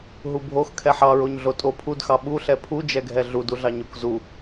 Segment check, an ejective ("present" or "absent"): present